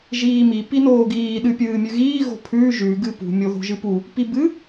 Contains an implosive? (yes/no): yes